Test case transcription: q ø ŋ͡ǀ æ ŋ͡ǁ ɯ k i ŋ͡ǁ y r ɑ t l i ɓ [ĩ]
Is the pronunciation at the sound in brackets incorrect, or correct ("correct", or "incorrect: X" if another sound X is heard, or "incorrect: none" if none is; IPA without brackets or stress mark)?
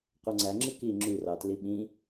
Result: correct